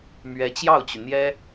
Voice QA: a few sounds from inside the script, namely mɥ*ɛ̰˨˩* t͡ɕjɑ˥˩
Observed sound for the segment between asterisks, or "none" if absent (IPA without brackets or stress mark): ɛ˧˥